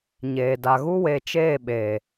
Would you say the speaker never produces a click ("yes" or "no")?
yes